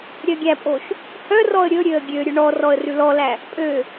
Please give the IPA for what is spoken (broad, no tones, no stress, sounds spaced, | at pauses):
ɾʲ œ ɡʲ æ pʼ o ʃ | h œ r ɔ ə̯ ɾʲ ɵ ɾʲ ø ə̯ ɡʲ ø ɾʲ ʉ ɳ ɔ r ɔ ə̯ r ʉ l ɔ l æ | pʼ ø